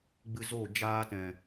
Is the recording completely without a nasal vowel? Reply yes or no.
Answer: no